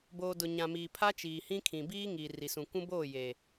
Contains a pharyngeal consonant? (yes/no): no